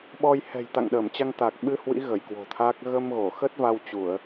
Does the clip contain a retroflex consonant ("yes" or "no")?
no